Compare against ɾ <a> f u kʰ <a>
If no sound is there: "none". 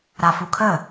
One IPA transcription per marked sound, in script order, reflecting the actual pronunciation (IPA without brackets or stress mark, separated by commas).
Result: a, ə